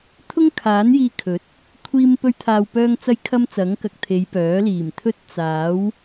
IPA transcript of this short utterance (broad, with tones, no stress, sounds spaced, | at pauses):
t̪ʰ ʊ˥ ŋ kʰ aː˨˥ n j iː˧ kʰ ɵ˨˥ t̚ | kʷʰ iː˧ m p ɵ˧ ɥ t̪ʰ aː˨ w p œː˧ ŋ t͡s ɐ˥ j kʰ ɐ˥ m t͡s ɐ˨˥ ŋ k ɐ˨ k̚ t̪ʰ e˨˧ j p œː˨˥ l iː˨˩ m t̪ʰ ɵ˥ t̚ t͡s aː˨˥ w